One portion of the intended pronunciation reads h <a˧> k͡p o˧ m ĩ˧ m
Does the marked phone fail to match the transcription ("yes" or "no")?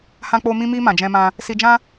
yes